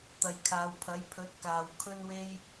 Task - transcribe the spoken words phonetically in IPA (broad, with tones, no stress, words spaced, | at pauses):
t̪ɐ˨jkʰaː˨˧wpʰɐ˨˥j pʰɵ˨˥t̚kaː˨w kʰɵ˥nwe˥j